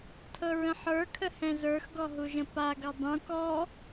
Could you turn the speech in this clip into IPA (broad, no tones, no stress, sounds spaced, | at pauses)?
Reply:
tʰ ɤ ɹ ə̃ ħ ə˞ kʰ ə h ɛ̃ z ə˞ x ɡ ɔ ɦ u ʒ ə̃ p a ɡ ʌ dˤ ũ k ɔ